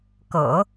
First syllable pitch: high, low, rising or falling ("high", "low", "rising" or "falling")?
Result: low